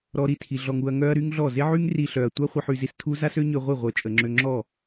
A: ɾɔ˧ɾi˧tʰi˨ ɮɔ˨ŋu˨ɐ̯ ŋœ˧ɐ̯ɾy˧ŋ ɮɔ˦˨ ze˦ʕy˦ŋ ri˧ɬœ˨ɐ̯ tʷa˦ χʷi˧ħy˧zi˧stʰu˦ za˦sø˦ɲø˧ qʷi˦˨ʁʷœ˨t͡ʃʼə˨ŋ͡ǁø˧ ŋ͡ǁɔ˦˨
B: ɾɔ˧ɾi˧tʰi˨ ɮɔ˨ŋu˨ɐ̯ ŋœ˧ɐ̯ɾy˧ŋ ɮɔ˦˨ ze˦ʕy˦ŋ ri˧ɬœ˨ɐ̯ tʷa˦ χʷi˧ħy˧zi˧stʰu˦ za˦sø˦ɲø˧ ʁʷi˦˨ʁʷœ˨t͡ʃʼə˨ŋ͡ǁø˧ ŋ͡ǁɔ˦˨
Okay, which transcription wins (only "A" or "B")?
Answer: B